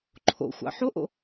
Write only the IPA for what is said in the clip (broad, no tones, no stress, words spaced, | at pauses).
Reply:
ǃʰo̰xʷɑ̰ ħoʔo̰